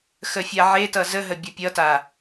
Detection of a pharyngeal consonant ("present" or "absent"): present